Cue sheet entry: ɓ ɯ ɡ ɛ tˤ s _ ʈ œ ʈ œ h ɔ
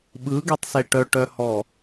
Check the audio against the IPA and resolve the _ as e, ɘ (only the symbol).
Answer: e